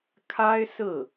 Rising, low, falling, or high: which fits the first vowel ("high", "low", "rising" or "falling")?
high